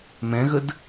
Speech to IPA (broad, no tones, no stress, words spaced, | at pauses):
mɛ̃ɣəd